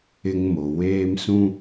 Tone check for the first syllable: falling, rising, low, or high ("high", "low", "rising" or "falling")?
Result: high